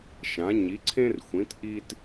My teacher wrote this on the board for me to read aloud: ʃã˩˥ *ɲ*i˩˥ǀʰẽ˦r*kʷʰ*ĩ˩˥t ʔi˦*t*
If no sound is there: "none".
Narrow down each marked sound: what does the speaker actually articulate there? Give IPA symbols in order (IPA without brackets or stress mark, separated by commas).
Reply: ɲ, xʷ, t